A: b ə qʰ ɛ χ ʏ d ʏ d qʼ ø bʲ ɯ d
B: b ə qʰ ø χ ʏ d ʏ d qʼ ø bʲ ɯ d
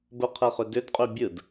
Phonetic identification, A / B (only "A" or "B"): A